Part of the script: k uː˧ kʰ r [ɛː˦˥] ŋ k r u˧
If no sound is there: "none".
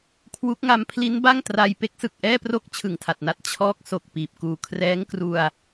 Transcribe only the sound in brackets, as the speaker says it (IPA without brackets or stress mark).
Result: ɛː˦˥